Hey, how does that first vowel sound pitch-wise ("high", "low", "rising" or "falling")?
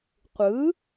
rising